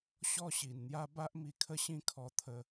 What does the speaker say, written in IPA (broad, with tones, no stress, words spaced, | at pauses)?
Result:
ɕɔ˦ɕi˨˩nn̪ja˦ ba˦ʔmi˧kʰə˦ɕĩ˦ kʰɔ˧t̪ʰə˧